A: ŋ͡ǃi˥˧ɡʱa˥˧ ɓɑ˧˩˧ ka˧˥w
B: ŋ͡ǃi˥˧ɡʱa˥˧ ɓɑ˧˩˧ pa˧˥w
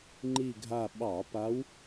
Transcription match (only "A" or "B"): B